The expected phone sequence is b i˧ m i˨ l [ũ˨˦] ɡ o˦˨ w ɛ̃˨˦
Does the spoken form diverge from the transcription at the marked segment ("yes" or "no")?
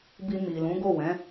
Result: no